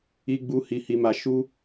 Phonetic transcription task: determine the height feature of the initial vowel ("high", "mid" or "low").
high